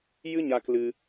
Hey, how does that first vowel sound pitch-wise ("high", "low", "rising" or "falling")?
high